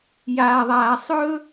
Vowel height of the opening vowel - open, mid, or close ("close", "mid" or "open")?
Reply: open